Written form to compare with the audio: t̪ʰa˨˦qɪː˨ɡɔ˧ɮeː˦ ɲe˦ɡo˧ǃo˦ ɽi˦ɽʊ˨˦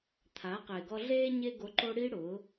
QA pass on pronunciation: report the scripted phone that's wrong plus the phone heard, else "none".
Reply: none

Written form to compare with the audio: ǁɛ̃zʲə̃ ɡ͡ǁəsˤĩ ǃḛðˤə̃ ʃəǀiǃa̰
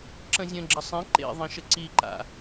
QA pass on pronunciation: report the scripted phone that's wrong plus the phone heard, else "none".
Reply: ɛ̃ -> ə̃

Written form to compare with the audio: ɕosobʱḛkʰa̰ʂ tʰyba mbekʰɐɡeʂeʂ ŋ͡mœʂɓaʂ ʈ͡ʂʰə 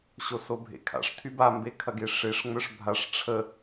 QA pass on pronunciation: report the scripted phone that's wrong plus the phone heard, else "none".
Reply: ɓ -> bʱ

